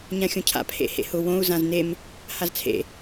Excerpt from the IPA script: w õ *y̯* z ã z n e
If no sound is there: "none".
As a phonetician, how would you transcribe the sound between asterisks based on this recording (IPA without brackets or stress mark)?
u̯